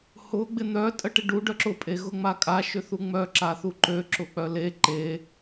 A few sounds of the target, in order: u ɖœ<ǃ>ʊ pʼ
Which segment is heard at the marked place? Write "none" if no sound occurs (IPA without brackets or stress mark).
ǁ